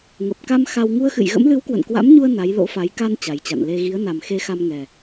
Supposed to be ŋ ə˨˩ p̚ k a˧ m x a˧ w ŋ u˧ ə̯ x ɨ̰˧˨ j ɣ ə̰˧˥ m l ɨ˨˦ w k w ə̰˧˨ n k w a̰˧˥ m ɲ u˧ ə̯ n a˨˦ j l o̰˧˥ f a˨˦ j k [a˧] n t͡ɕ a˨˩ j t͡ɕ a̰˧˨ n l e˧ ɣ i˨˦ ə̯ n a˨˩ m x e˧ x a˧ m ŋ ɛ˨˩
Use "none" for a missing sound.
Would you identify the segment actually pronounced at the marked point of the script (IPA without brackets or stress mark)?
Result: a˧